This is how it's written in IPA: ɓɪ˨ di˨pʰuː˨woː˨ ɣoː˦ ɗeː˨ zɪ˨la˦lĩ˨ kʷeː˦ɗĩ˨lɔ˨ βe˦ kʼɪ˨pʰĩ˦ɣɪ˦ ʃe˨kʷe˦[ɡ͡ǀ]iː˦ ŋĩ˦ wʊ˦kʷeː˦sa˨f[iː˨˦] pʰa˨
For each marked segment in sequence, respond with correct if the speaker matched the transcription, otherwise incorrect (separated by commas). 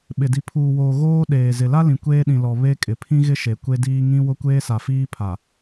incorrect, incorrect